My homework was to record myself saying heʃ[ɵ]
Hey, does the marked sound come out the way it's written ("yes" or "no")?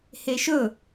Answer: yes